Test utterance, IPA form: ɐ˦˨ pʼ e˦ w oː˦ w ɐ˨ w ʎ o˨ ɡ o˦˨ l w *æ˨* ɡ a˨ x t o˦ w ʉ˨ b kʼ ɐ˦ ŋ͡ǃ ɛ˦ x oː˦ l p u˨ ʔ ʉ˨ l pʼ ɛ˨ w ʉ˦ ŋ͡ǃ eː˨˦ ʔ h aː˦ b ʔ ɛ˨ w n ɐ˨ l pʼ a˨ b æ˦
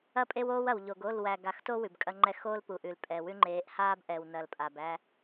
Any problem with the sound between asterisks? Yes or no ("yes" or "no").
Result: no